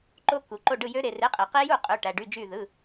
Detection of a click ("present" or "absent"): present